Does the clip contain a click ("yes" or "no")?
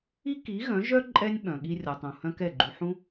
yes